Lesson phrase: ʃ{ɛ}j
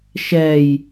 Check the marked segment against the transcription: correct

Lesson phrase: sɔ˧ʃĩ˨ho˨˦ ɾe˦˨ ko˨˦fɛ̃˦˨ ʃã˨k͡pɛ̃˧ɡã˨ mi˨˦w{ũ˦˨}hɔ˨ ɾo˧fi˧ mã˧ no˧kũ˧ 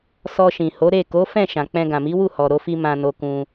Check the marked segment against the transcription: incorrect: u˦˨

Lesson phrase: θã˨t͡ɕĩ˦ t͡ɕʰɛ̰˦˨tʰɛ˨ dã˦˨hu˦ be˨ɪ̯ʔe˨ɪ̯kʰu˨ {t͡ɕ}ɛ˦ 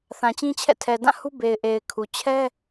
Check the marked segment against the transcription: incorrect: t͡ɕʰ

